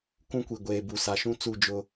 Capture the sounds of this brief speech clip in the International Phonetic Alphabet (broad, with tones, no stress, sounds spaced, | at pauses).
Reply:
k ũ˦ kʷ i˨ ɡʷ eː˨ b u˨ s a˨ ʃ ũ˦ t͡s u˦˨ d͡ʒ ʊ˦